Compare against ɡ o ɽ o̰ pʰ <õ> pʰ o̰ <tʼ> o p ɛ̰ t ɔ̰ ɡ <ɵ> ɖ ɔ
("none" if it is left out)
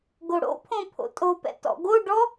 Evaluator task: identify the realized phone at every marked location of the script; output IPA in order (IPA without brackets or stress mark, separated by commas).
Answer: õ, tʼ, o